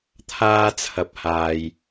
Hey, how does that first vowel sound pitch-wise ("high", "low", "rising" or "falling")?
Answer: high